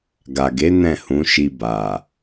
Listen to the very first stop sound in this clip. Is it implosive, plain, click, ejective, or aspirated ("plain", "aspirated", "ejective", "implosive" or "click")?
plain